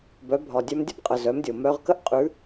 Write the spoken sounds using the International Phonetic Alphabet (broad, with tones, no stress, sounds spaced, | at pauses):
b œ˩˧ bʱ ɒ˩ dʲ œ˧ m dʲ ə˥ b qʼ ə˩ z œ˩˧ m dʲ o˩ m œ˧ ʁ k ə˥ ʔ qʼ ʉ˧˥